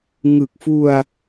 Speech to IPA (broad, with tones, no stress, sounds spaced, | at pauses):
ŋ ɯ˨˩ k̚ f u˧ a̯